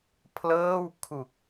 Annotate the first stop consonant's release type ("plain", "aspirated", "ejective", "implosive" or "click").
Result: aspirated